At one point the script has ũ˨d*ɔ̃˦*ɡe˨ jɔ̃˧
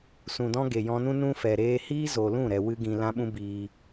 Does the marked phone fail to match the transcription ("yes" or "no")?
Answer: no